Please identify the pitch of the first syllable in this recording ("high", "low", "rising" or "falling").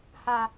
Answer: high